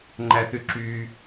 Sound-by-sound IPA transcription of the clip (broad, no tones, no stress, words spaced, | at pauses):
ŋ͡ǃæθyǁyː